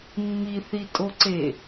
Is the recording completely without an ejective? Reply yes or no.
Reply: no